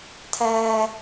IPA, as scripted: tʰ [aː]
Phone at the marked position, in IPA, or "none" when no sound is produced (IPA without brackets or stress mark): æː